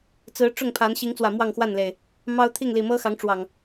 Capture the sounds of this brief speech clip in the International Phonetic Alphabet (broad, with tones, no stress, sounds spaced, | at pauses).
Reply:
t͡s ɹ̩˨˦ ʈ͡ʂ ʊ˥˨ ŋ pʰ a˨˦ n ɕ i˨˦ ŋ t͡s w ä˨˩ m w ɑ˥˨ ŋ x w a˥˨ n l e˨˩ ɪ̯ | m ɑ˦ ʊ̯ t̪ʰ i˥˨ ŋ l i˨˩ m ɤ˦ x ɑ˨˦ ŋ ʈ͡ʂ w ɑ˨˩ ŋ